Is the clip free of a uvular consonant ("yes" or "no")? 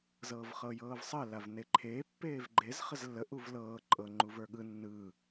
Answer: no